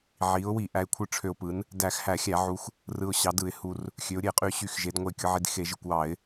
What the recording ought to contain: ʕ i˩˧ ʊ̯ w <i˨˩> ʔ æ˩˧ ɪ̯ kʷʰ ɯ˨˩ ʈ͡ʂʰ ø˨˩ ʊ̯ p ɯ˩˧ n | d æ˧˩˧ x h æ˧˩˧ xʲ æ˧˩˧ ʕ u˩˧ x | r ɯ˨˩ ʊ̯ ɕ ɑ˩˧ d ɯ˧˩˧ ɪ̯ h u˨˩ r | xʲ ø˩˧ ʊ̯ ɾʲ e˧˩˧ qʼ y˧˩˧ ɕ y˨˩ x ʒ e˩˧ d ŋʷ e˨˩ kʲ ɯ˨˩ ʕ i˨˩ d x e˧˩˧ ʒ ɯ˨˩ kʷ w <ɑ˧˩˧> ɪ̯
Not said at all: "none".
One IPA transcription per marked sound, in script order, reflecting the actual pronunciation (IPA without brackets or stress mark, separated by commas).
i˧˩˧, ɑ˧˩˧